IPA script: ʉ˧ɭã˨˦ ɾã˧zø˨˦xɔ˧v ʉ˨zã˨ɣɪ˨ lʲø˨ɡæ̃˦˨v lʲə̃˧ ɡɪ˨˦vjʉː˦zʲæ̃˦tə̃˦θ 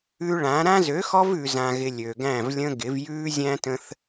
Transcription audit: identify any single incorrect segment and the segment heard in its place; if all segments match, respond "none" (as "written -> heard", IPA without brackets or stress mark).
none